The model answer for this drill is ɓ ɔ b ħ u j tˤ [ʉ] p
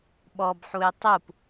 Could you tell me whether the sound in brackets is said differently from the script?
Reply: yes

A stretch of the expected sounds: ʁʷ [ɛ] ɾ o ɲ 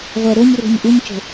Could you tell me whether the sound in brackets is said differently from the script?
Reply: no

